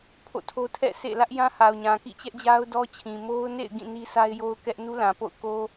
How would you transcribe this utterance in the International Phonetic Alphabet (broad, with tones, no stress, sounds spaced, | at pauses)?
pʰ o̰˦˨ tʰ o˦ tʰ ɛ̰˦˨ s ḛ˦˨ l ä˦ ʔ j ã˦ h a˨ ʊ̯ ɲ ã˨ k ḭ˦˨ t͡ɕ ɛ˦ ʔ d͡ʑ a˦ ʊ̯ d ɔ˦ t͡ɕʰ ĩ˨ m o˦ ʊ̯ n ḛ˦˨ ɪ̯ ɡ ĩ˦˨ n i˦ s a˦ ɪ̯ j o˦ ʊ̯ k ɛ˦ ʔ n u˦ l ã˨ p o̰˦˨ ʊ̯ k o˦